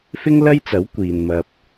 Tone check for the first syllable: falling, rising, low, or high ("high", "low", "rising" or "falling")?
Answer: high